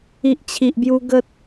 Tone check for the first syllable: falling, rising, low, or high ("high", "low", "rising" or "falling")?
low